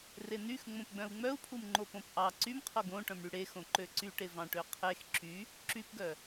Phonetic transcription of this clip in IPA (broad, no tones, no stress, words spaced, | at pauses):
renyx ŋ͡mõpɡ͡bœ̃u̯ŋ͡mœu̯pʰum ŋ͡ǃopõpʔɑ ǀymqʰo ɡõʈœ̃mɽy ɽexõ ǃøǀyʈe vɑ̃ʈøqʰex ǁy | ǁypɡœ